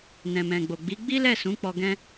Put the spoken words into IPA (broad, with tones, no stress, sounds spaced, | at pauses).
n ɛ̃˨ m ɛ̃˨ ɡ͡b o˨ ɡ͡b i˨˦ ɡ͡b i˦ l ɛ˦˨ s ũ˨˦ k͡p ɔ˧ ɡ ɛ̃˧